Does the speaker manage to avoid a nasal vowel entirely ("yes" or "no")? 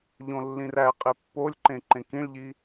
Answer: no